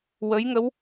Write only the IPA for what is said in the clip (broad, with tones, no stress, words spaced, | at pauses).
wə˧˥jŋə˧˥w